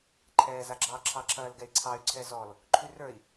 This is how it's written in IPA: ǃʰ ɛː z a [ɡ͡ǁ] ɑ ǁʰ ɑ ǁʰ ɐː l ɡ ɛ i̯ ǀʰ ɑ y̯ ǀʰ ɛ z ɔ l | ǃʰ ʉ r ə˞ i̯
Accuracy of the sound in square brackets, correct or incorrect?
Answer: correct